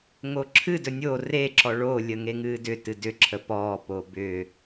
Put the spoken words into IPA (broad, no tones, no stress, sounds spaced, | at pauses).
ŋ o ǁʰ ɨ d ɵ nʲ o r e ǁ ɔ ɭ o lʲ ə ŋ e ŋ ɨː d ʏ t ɨ d ʏ ǁʰ ə p ɔː p oː b ʏː